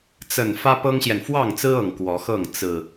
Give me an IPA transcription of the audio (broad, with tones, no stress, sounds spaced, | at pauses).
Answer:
t͡s ə˨˩ n f ä˦ p ɤ˦ ŋ ɕ j ɛ˨ n f w ɑ˥˨ ŋ t͡s ɹ̩˦ ɤ˨˩ ŋ k w ɔ˨˦ x ɤ˥˨ ŋ t͡s ɹ̩˨˩